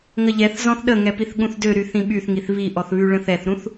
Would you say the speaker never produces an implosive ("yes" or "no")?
no